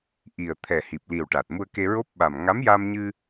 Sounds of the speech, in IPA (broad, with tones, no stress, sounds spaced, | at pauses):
ʔ i˨˩ ə̯ t̪ʰ ɛ˨˩ h i˨˩ p̚ l i˨˩ w ʈ a˨˩ t̚ m u˧ ə̯ k e˧ ɹ o˦˥ p̚ ɓ a˨˩ m ŋ a˧˥ m j a˧ m ɲ ɨ˧